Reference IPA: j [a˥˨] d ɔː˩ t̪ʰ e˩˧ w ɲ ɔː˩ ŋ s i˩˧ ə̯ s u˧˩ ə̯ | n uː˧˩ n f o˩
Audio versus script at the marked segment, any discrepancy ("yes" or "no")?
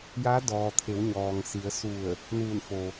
yes